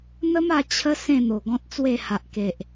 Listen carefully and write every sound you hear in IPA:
n̪ ə˦ m a˧ t͡ɕʰ ə˦ s ẽ˥˧ n̪ o˨˩ ɡ ɔ̃˦ t̚ t͡s w e˥˧ h a˨ ʔ k e˨ ʔ

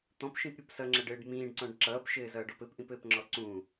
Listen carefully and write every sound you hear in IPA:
t̪ ɔ̃ p ʃ ĩ p ɾʲ u p s ʌ ŋ͡ǁ ʌ ɖ ɘː ɖ m ĩː ɖ ǀ ɔ̃ ɖ ǁ ʌː p ʃ ɘː z ʌː ɖ ɔ p ɘ p ʔ ĩ p ɘː p ŋ͡ǁ ɔ ǀ ũ

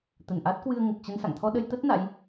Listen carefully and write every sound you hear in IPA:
t̪ ə˧˩ n ʔ a˦˥ t̚ k w ɨ˧ ə̯ ŋ ə˨˩ p̚ t͡ɕ ə˧ n s a̰˧˨ ŋ t̪ʰ ɔ˧ ɗ ə˧ j t̪ ə˦˥ t̚ n a̰˧˥ j

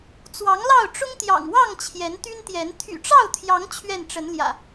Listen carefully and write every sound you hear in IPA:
t͡s w ɑ˨˦ ŋ l ɑ˥˨ ʊ̯ ʈ͡ʂ ʊ˦ ŋ t̪ j ɑ̰˨˩ ŋ w ɑ˥˨ ŋ t͡ɕʰ j ɛ˨˦ n t̪ y˦ n t̪ j ɛ˨˦ n t̪ʰ y̰˨˩ ʈ͡ʂ ɑ˥˨ ʊ̯ t̪ʰ j ɑ˨˦ ŋ t͡ɕʰ ɥ ɛ˥˨ n ʈ͡ʂ ə˨˦ n l j ä̰˨˩

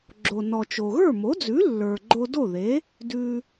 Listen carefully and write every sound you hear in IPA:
ɡ͡ǁ o˩ n ɔ˩ t͡ʃ o˩ ɣ ə˞˥˩ m o˩˥ d͡z ʉ˩˥ lː ə˞˩ ɡ͡ǃ o˧ d o˥˩ ð e˩˥ | d ʉ˩

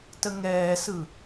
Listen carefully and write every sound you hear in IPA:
t ə ŋ ɛː s ɯ

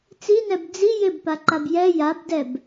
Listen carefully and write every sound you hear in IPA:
t͡s i n ɛ b d͡z i j ɪ b p a ǃ a b j ɛ j a b d ɛ b

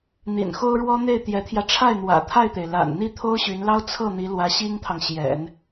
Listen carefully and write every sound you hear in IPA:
n̪ ḭ˨˩ n x o˥ ʊ̯ ɻ w ɔ˥ n̪ e˥˩ ɪ̯ t̪ j ɛ˧˥ t̪ʰ j ä˧ ʈ͡ʂʰ a˥˩ ɪ̯ n̪ w ä̰˨˩ t̪ʰ a˥˩ ɪ̯ t̪ e˩ ɪ̯ l a̰˨˩ n n̪ i˥˩ t̪ʰ o˥ ʊ̯ ɕ y˧˥ n l ɑ˥ ʊ̯ t͡sʰ ɤ˥˩ n̪ i˧˥ l w ä˧˥ ɕ i˥ ŋ t̪ʰ ɑ˨ ŋ ɕ j ɛ̰˨˩˦ n

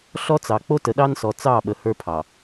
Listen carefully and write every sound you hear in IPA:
ɬ ɔ˦ t͡s ɑ˨ k͡p o˦ t ə˨ ɗ ɑ˦ n s ɔ˨ t͡s ɑ˦˨ ɓ ə˨ h ə˞˦ pʰ ɑ˨

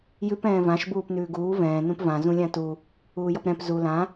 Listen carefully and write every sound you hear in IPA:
j ʉ p ɛ̃ː v ã ʃ b uː p n ʉː ɡ uː v ɛ̃ː n ũ p v ã z ũ lʲ ã t u | uː j ʌ p ɾ ɛ̃ p z u l ã

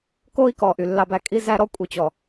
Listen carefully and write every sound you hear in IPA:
k o˦ i̯ k ɔ˨ ʔ y˨ lː ɑ˦ b æ˦ kʼ i˦ z æ˦ ɾ ɔ˦ kʷʼ i˨ t͡ɕ ɔ˨

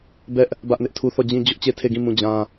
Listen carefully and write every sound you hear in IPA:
b ɛ˦ ʔ | b ä˦ ʔ n ɪ˦ ʔ tʰ u˦ θ ɔ˦˨ d͡ʑ ĩ˦ d͡ʑ ʊ˦ ʔ t͡ɕ e˦˨ tʰ e˦˨ ɡ ĩ˦˨ m ũ˦˨ d͡ʑ ã˦

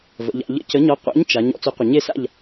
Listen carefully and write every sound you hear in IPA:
v ə̰˩˧ ʎ a̰˩˧ ʎ ə̰˦˨ c ə˨˥ ɲ ɔ˨˥ qʷ a̰˨˥ ɲ t͡ʃ a˩˧ ɲ ɔ̰˦˨ t͡s ɵ˨˥ qʷ ə˩ ɲ e˦˨ s a̰˦˨ ʎ

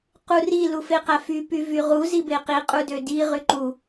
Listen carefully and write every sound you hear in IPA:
q u r i l u f e q æ f y p y v y ʁ u z i b e q i qʼ u d ø d i ʁ y ǃ u

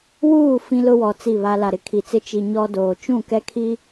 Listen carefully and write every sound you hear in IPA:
w uː˦˨ f ĩ˦ l ʊ˦ w ɔ˨ t͡s i˦˨ β a˦ l a˨ ɾ ɪ˨ kʰ i˨ t͡s ɪ˦ t͡ʃ i˨ ɲ ɔ˦ d oː˨ t͡ʃ ũ˦˨ k ɛ˦ kʰ i˦

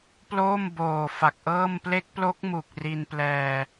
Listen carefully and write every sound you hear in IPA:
p l oː˥˩ m b oː˨˩ f a˨˩ k̚ ʔ ɤː˥˩ m p l e˦˥ k̚ p l o˦˥ k̚ m u˨˩ k̚ r i˧ n p l ɛː˧

